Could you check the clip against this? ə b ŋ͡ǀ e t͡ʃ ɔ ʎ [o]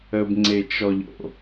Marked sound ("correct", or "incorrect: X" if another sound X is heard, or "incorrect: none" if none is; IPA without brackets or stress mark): incorrect: o̰